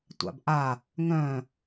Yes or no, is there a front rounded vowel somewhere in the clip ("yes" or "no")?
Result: yes